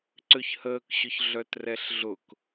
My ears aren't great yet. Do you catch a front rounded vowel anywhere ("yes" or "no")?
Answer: yes